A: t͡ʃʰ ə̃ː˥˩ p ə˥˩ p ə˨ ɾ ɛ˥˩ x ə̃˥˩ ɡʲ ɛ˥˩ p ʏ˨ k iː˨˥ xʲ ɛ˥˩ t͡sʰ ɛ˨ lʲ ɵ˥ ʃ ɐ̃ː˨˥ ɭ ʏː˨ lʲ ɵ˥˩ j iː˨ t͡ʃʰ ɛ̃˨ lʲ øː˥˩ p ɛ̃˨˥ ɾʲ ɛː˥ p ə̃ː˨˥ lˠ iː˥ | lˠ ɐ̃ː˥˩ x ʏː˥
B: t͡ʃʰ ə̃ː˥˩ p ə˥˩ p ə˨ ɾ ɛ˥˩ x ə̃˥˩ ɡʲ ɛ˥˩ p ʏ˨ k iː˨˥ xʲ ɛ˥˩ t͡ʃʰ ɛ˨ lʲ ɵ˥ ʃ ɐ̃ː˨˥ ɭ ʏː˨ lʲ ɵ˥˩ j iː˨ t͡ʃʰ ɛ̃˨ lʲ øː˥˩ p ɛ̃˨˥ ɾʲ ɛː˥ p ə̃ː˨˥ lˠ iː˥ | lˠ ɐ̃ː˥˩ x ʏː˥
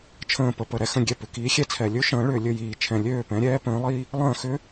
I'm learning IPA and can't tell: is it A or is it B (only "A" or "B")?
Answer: A